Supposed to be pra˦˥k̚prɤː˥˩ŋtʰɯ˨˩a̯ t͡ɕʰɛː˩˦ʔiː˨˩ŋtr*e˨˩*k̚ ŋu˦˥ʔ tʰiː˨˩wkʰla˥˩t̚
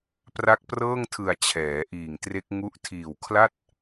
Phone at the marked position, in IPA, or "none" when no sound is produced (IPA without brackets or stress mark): e˦˥